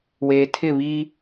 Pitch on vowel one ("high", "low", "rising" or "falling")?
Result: low